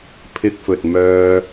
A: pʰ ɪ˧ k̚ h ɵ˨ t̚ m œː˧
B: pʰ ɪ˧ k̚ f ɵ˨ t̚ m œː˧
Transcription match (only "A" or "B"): B